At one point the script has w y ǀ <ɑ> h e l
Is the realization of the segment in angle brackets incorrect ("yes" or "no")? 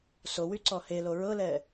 yes